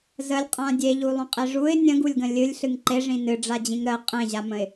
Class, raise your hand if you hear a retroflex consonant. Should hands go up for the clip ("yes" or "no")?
yes